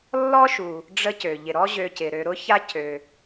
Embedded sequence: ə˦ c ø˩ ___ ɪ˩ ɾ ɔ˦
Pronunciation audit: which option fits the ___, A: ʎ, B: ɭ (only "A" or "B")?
A